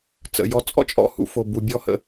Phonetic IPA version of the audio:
t͡sə̰˩jɔ˧ t͡sʼɔ̰˥t͡ʃʼɔ̰˧hṵ˧ fo˩ bu˩bʲɔ˥hə̰˧

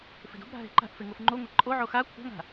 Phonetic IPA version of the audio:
fe̤do̤bɾa̤ ɦe̤ǃa̤ʔ feŋofŋ͡ǃoŋʷa ǃʼoʕo xa kʷʰa̤ŋa̤

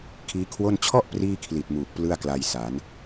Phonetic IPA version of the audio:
kʰiː˦˥kʰwo˥˩n t͡ɕʰɔ˥˩ʔ priː˥˩kʰli˨˩t̚ muː˨˩k̚plɯ˥˩a̯kla˧j sa˩˦n

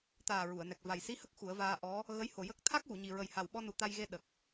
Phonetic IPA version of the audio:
t̪aː˨˩ ɹu˨˩˨ə̯nɛ˨˩k̚ va˨˩jsi˧˥hə˦˥k̚ xu˨˩˦ə̯vaː˧ ʔɔ˧˥ | ɣə˧˥jho˨˩ jə˦˥k̚ t̪ʰa˦˥k̚wu˨˩˨ɲi˨˩ ɹə˨˩jha˨˩wɓɔ˧ nu˨˩t̪a˧jɣe˧ ɗə˨˩k̚

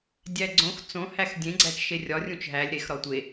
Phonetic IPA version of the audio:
dʲæɡ͡ǀõx t͡sõ hæxdʲẽ ɡ͡ǀæt͡ʃʃerʲɒ rʲũt͡ʃɦælʲ ɾex ɾɒtʷe

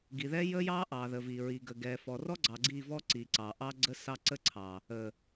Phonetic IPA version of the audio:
ɡi˨ðɛ˦jə˦ jɑ˦ ʔɑ˨ðə˨vi˨ɹi˨ ɡə˨ɡɛ˨ fɔ˨rɔ˦ ɡ͡ǀɑ˨ɡ͡ǀi˦˨vɔ˦ ǀi˨ǀɑ˨ʔɑ˦ɡ͡ǀə˦ sɑ˦ ǀə˦ǀʰɑ˨ | ə˨

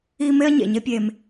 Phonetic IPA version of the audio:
i˦ me˦ɐ̯ ɲḛ˨ɲe˦pʲeː˧m

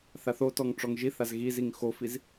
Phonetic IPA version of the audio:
θaθotɔŋ ʈ͡ʂɔŋʒiθaz ɣiziŋ xofiz

